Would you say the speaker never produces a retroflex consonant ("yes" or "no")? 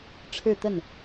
no